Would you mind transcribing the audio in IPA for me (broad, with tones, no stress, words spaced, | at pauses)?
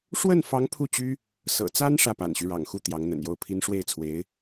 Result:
ʂwə˥˩nfɑ˧˥ŋ pʰu˥˩t͡ɕy˥ | sɤ̰˨˩t͡sa˥n ʂä˥˩pa̰˨˩nɕy˦ ɻɑ̰˨˩ŋxu˥˩ t̪jɑ˧˥ŋ n̪ə̰˨˩njo˥˩ʊ̯pʰi˥n ʂwe˥˩ɪ̯t͡sʰwe˧˥ɪ̯